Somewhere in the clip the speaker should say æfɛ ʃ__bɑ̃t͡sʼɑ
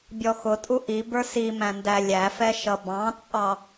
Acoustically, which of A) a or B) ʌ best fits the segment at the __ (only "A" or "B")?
B